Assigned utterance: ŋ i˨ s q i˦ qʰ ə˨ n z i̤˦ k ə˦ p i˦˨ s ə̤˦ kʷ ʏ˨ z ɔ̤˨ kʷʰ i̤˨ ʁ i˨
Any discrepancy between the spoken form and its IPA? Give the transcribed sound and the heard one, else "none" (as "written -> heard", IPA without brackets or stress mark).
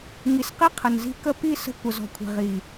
ʏ˨ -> ə˨